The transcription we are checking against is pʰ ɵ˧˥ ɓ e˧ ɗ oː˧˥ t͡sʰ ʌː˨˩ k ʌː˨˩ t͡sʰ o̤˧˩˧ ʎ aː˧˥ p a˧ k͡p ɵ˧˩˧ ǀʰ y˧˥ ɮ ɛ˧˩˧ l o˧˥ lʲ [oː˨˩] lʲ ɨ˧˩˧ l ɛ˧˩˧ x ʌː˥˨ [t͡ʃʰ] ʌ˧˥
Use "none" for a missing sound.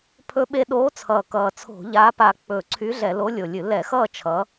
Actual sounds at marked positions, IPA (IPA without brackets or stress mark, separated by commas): o˨˩, t͡ʃʰ